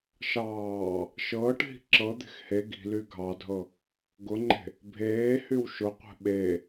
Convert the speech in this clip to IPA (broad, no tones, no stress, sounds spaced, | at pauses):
ʃ ɑː | ʃ ɤː ʈ ɦ i̤ ǁ ɤ d̪ e̤ x h e ɡ i̤ l y ɡʱ ɑ dʱ ɤ | ɡ ʊ ŋ͡ǃ e̤ | bʱ eː h y w ʃ ʊ qʷ ɛ̤ ɓ e